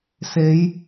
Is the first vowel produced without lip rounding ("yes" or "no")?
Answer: yes